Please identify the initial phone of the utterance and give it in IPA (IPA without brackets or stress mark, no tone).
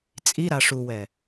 t͡sʼ